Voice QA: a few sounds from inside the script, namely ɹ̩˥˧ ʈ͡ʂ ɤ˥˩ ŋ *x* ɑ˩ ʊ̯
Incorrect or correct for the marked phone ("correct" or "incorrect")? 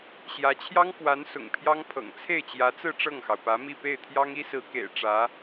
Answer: correct